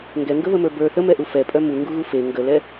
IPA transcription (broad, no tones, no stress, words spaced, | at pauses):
ŋɡɛŋɡəβəmə˞ bə˞ θəmɛʔu fɛpʼœ muŋɡuɣu fe ŋɡəlɛ